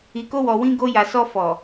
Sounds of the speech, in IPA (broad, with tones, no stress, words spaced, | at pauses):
i˨ko˧wɔ˨ wĩ˧ɡo˧ja˨ sɔ˧fɔ˨